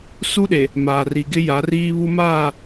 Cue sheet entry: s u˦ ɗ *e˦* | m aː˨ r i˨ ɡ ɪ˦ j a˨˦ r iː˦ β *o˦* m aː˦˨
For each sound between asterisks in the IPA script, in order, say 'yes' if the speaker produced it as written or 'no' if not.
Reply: no, no

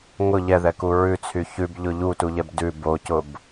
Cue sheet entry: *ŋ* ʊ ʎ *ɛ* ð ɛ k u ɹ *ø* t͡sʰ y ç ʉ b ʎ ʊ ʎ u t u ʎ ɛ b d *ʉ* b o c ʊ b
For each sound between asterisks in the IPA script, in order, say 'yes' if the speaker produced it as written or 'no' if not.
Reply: yes, yes, no, yes

